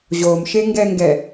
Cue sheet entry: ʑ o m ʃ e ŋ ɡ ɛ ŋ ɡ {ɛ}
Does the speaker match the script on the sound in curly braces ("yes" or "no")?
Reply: yes